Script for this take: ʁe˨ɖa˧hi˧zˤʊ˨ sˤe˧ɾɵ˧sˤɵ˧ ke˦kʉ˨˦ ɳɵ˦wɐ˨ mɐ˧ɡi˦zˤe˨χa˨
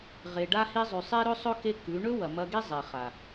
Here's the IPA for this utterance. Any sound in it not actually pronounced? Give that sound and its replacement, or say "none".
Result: ʊ˨ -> ʉ˨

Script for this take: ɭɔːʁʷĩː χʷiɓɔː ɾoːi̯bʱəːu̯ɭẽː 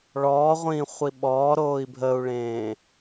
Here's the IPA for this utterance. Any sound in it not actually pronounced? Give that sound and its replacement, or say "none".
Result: none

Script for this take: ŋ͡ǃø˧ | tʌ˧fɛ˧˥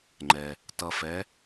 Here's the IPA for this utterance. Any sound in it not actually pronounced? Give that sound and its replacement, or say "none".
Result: ø˧ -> ɛ˧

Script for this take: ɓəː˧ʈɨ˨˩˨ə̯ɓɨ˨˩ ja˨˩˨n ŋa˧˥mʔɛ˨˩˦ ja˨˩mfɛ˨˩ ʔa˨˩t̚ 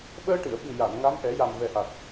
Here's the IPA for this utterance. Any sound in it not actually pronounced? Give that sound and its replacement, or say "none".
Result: f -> v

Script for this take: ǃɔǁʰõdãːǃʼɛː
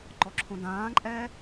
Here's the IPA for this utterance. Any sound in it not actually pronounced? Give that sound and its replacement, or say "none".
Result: none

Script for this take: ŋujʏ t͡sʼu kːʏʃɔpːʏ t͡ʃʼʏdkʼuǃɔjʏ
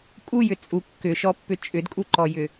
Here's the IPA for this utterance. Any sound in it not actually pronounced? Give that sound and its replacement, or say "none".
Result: ŋ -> kʼ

